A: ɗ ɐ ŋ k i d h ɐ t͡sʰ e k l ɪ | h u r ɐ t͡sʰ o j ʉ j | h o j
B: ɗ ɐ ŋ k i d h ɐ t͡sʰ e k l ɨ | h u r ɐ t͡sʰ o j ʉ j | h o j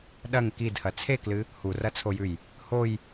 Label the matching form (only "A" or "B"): B